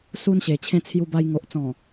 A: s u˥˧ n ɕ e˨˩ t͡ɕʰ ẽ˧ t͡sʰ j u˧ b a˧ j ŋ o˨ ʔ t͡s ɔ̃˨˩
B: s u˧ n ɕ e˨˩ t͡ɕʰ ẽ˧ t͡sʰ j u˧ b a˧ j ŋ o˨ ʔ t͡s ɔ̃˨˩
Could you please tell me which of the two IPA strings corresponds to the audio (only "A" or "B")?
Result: B